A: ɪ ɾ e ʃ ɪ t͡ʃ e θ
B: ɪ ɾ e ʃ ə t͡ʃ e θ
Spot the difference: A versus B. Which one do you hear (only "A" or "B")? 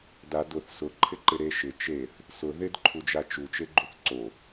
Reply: A